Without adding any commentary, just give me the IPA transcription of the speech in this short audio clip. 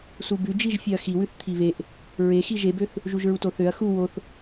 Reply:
s u b ʉ d͡ʒ i ʒ fʲ e ɐ̯ x i w ʉ θ t̪ʰ i β e ʔ | ɹ e x i ʒ e b ø θ | ʒ u ʒ ɹ u t o θ ø ɐ̯ x u w o θ

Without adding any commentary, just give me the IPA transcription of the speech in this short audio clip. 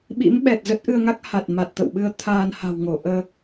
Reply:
ɓ ḭ˧˥ m ɓ ɛ˨˩ t̚ z ə˦˥ t̚ ʔ ɨ˧ ə̯ ŋ a˦˥ k̚ h a˨˩ t̚ m a˨˩ t̚ t̪ ə̰˧˨ w ɓ ɨ˧ ə̯ t̪ʰ aː˧ n h a̤˨˩ w ŋ o˧˩ ʔ əː˧

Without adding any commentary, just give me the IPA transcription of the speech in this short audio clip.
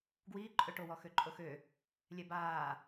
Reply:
ɡ w iː ǃʼ ø ʈ o w ɔ x ø ǃʼ o x ø | lʲ ɛ b aː

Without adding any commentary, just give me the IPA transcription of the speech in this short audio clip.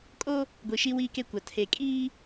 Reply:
kʼ o˦ | ɡʷ i˨ ʃ i˦ w iː˦ k e˦ kʷ a˨ tʰ e˨ kʼ iː˦

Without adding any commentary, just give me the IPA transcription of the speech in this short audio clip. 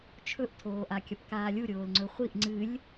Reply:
t͡ʃʰ ɵ ʔ tʰ oː ʔ a kʲ ɐ p k aː lʲ u ɾʲ oː l ŋ͡ǀ ɵ χʷ i ʔ ŋ͡ǀ ɨ lʲ

